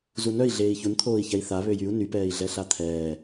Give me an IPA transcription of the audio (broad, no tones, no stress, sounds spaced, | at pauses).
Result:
z u n œ i̯ ɮ eː i̯ ç u n t̪ʰ oː i̯ ç ɛ i̯ θ a β ø j y u̯ n y p ɛː i̯ ɮ ɛ ɬ a t̪ʰ ɛː